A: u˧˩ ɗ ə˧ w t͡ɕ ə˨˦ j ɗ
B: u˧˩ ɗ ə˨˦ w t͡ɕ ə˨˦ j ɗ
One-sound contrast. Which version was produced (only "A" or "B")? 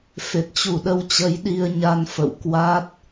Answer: A